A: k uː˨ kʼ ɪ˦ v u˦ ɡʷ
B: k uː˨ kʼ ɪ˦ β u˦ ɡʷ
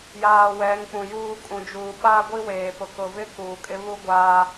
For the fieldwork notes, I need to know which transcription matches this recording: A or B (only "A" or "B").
B